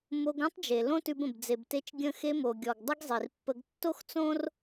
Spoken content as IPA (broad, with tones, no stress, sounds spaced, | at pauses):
m o˧ ɡ õ˥ tˤ d͡ʒ e˩ l õ˥ t ʉ˧ b ə̃˩ b d͡z e˩ b t e˧ t͡ʃ ɡʲ ə̃˧ x e˧ m o˩ ɡʲ ɔ˩ ɡ dˤ ə˥ ɡ zˤ i˩ r pː ə˧ ɡ tː o˥ x t͡s õ˥ r